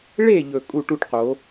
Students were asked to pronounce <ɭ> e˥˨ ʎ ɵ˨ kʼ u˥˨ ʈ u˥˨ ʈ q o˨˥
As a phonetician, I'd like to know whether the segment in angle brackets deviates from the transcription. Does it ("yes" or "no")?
no